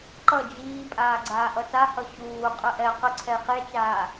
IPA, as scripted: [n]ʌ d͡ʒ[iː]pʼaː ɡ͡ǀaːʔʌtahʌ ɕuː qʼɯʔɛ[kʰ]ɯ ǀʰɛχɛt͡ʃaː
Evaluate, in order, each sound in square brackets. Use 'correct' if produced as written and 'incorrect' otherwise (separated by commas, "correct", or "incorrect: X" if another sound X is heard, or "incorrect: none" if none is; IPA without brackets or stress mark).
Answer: incorrect: ǃ, correct, incorrect: q